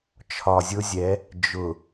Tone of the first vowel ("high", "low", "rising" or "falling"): low